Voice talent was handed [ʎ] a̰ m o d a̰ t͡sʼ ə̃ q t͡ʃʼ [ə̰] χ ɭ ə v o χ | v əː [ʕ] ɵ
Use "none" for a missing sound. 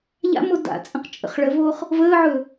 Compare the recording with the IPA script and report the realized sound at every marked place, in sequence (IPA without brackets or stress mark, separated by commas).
ʎ, ə̰, ʕ